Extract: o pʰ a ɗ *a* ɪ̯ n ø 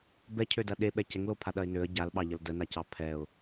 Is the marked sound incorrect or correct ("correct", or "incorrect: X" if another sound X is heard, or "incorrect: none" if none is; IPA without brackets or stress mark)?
incorrect: ɐ